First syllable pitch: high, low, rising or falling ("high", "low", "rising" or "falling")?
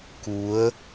rising